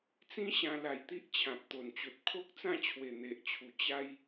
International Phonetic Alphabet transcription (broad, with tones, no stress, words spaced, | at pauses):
t͡sĩ˦ɕã˧ la˧jt̪i˦ʔ t͡ɕʰã˨p̚t̪o˨˩nt͡ɕo˨t̚ kʰo˦k̚t͡sã˥˧t͡ɕʰwe˨˩ n̪e˨ʔt͡ɕʰu˨˩ t͡ɕa˧j